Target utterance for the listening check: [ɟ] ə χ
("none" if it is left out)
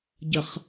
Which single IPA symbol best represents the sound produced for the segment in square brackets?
ɟ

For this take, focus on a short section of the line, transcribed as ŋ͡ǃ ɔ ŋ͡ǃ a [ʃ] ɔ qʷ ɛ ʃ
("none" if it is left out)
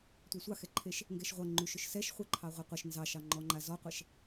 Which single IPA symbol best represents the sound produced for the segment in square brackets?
z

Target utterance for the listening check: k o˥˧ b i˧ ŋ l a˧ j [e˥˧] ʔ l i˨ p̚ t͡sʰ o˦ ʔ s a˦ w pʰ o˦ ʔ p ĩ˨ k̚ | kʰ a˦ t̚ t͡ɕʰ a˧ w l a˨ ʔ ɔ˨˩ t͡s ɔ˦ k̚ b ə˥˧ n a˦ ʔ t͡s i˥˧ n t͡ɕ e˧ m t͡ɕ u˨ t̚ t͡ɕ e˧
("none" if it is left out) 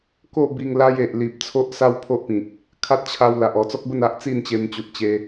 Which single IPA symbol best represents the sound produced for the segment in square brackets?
e˨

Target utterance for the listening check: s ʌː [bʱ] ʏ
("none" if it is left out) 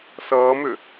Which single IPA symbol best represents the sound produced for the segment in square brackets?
m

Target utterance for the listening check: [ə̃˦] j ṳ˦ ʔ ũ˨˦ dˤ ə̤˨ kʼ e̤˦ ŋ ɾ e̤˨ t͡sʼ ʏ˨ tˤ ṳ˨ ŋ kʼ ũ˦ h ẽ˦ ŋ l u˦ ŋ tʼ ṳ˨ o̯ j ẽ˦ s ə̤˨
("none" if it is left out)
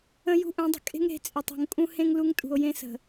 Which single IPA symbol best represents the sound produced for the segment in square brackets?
ə̃˦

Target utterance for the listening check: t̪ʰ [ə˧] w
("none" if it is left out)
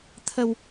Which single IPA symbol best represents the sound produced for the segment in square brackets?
ə˧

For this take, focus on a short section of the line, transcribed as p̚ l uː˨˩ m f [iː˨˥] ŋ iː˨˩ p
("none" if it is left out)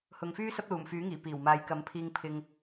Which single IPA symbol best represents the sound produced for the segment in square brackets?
yː˨˥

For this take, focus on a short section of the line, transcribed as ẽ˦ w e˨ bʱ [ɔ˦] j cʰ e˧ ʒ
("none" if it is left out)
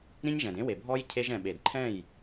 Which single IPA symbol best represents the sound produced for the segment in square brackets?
ɔ˦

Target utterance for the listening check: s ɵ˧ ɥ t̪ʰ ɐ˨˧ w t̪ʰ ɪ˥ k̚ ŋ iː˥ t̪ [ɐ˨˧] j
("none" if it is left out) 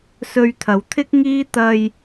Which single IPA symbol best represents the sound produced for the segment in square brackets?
ɐ˧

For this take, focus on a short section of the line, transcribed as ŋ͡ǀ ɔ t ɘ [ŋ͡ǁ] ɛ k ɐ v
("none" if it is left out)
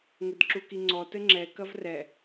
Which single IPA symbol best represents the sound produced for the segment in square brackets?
ŋ͡ǁ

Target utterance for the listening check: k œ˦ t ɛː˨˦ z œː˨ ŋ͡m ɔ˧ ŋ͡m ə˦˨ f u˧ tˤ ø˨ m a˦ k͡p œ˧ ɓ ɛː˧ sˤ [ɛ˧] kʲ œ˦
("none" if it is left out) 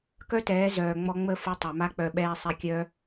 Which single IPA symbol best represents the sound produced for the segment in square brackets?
ɛ˧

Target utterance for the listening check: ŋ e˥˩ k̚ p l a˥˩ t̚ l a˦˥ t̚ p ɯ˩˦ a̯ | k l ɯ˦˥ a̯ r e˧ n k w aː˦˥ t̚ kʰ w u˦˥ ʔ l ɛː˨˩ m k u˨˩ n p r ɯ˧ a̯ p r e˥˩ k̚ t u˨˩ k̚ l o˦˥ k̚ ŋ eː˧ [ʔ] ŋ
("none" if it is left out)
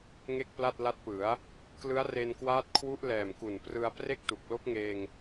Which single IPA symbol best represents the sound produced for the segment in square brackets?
none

